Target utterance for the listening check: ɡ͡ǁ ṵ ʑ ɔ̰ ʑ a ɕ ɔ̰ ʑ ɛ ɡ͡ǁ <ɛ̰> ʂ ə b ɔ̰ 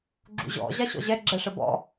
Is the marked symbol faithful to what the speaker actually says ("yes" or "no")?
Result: no